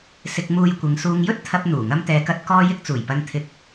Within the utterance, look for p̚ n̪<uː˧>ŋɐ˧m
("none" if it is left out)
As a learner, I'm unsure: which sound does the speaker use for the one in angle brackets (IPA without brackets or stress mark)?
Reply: uː˨˩